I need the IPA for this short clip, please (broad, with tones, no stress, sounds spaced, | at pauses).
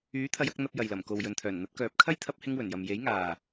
yː˨˥ t̪ʰ ɐ˨˧ j ɐ˧ k̚ n̪ ɐ˧ p̚ j ɐ˨ j l ɐ˨˩ m k o˨ w j ɵ˨ n t̪ʰ œː˨˩ n n̪ ɐ˨˥ t̚ k œː˨˥ p̚ kʰ ɐ˥ j t̪ʰ ɐ˧ p̚ h ɪ˧ ŋ w ɵ˨˩ n j ɐ˨ m j e˨˥ j ŋ aː˨